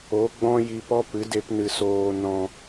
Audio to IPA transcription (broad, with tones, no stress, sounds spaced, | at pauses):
o˨˦ ɡ͡b ɔ̃˦ j i˧ p ɔ˦ p ɨ˨˦ d e˦ p n ɨ˧ s oː˧ n ɔ̃˧